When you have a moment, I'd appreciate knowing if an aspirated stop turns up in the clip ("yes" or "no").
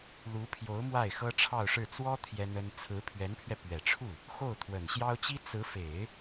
yes